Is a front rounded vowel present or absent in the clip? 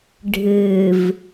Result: absent